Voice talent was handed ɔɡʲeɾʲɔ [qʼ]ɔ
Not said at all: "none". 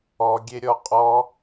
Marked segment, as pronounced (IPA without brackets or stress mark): qʼ